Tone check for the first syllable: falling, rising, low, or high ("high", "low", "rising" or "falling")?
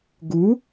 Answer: rising